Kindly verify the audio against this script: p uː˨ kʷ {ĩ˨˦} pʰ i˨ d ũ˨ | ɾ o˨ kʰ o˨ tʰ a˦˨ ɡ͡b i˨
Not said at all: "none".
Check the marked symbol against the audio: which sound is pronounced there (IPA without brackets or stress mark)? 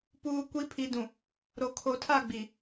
i˨˦